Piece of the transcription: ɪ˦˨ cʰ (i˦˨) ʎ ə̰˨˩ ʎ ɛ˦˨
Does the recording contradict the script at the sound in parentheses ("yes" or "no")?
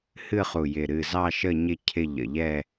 yes